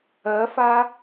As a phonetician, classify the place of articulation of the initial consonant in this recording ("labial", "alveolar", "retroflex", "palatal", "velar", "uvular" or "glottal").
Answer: labial